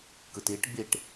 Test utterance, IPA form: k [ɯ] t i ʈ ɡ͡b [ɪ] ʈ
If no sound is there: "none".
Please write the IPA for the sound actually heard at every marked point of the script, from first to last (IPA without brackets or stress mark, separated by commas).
ɯ, i